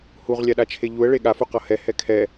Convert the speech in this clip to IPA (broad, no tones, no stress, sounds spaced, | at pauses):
h u ʁ lʲ a ɗ a t͡ʃʰ e ʎ u ə̯ ɭ e ɠ a f u q ʌ h ɛ h ɛ kʰ ɛ